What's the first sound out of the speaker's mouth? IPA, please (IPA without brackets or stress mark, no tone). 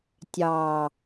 tʲ